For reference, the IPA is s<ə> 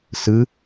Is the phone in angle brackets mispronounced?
yes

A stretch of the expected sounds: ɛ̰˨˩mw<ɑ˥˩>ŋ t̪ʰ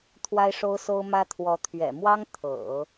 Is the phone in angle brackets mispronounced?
yes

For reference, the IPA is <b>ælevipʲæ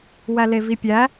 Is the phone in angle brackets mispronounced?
yes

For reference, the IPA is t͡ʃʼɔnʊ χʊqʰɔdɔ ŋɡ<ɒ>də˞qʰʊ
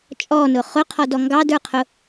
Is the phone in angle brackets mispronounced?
yes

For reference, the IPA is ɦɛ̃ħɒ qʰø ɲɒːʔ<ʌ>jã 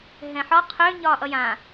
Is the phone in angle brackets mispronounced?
no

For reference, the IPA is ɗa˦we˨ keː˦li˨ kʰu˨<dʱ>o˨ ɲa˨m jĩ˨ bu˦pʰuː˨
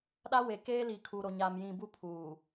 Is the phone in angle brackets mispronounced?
yes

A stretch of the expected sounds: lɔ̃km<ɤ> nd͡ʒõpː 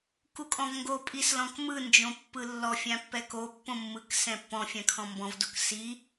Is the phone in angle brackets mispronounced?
yes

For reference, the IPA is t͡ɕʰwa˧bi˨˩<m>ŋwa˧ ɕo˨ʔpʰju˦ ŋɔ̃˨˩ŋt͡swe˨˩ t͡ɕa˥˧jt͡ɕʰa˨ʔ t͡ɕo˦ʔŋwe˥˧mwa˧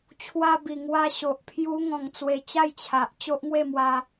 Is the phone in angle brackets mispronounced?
yes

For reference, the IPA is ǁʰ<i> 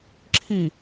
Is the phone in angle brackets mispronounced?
no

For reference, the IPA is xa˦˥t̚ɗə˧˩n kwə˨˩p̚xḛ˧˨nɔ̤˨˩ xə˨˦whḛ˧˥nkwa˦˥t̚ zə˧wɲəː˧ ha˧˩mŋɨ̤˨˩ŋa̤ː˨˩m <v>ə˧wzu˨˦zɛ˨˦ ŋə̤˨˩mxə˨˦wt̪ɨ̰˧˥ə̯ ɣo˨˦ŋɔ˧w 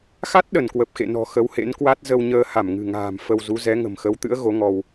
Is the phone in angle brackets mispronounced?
yes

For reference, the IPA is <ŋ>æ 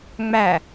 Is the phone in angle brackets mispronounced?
yes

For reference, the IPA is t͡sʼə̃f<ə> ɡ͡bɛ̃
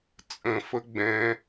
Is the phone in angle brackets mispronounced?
no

